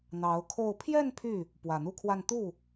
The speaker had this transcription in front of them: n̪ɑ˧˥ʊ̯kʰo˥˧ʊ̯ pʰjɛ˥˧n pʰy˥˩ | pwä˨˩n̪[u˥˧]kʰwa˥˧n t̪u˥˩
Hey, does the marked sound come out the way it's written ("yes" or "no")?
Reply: yes